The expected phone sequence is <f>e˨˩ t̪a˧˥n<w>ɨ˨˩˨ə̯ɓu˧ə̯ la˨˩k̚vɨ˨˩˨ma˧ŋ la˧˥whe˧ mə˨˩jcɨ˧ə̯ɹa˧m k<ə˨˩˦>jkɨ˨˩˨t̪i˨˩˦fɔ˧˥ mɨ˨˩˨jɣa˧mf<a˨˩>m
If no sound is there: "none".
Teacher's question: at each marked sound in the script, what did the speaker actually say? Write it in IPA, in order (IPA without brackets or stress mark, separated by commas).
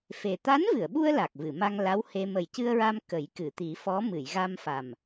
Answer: f, v, ə˨˩˦, a˨˩